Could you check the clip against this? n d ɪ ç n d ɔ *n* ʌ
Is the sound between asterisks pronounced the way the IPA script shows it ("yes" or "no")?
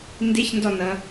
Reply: yes